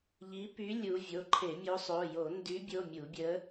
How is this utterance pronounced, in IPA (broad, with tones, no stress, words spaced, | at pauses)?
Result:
ʎi˨˦py˨˦ lʲu˨˦ vʲo˩˧˩ǃʰe˧˩˧mʲo˨˦sˤo˩˧˩ jo˧˩˧ndy˨˦bʲo˩˧˩ mʲu˧˩˧bʲə˨˦